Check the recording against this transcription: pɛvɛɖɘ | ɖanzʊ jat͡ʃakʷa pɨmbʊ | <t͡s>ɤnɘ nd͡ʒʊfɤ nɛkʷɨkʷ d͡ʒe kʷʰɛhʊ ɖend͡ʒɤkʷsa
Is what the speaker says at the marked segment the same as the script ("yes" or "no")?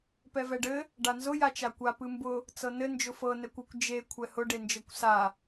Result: yes